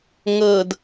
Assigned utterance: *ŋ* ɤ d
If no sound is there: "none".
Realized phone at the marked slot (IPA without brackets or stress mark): ŋ